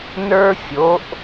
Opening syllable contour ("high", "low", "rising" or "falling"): high